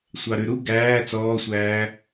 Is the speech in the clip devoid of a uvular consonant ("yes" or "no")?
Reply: yes